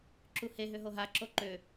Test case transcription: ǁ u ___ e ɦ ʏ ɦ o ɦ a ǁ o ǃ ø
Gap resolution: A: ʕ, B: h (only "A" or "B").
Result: B